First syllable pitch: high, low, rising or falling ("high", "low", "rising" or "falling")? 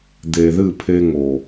low